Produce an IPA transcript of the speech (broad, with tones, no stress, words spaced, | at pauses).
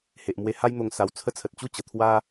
he˨ʔmwe˧ha˦jn̪o˧ŋ sa˨˩wt͡sʰə˧t͡sʰə˨t̚ t͡ɕu˥˧t͡ɕə˨˩t̪ʰwa˦